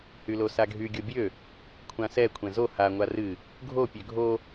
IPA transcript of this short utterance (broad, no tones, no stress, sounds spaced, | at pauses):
h y l o s a ɡʱ y ɡʲ o bʲ ø | kʷʰ ã s ɛ kʷʰ ɛ̃ z o h a ŋʷ a r ɨ | ɡʱ o pʲ ø ɡʱ o